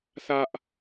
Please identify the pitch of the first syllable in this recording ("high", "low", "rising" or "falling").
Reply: high